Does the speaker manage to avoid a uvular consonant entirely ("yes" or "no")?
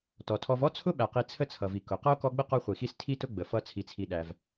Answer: no